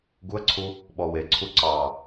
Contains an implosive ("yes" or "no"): yes